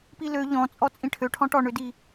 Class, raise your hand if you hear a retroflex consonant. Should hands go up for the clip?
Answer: yes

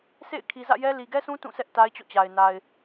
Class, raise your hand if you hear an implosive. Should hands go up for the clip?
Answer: no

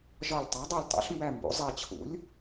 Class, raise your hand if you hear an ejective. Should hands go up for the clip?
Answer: no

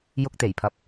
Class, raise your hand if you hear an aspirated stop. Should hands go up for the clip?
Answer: yes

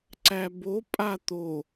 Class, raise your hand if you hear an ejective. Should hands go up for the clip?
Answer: yes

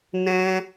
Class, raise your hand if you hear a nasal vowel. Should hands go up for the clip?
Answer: yes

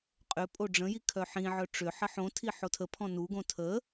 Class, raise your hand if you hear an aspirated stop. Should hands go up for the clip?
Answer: yes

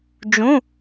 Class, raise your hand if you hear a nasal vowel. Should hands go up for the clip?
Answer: yes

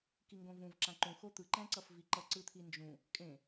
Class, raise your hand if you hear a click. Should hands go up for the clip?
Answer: yes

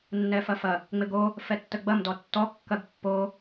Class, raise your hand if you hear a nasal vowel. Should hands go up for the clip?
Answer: no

